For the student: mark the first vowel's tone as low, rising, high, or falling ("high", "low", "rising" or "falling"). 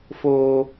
low